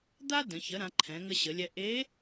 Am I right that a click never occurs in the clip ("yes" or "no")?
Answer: no